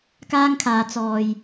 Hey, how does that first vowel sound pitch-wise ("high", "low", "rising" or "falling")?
high